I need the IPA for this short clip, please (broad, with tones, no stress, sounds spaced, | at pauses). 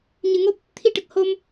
ɲ ɨ˨˩˨ ŋ o˦˥ p̚ | t̪ʰ i˧ ʈ ə˨˩ k̚ h o˧ m